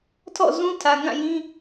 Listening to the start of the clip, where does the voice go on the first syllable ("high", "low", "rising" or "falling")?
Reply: falling